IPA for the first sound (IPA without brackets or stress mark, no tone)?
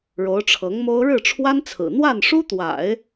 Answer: ɻ